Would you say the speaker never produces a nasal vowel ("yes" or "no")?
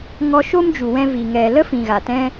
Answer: no